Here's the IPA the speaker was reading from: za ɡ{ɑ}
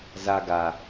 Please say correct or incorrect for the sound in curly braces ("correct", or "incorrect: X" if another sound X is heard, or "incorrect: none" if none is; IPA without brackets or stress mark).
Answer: incorrect: a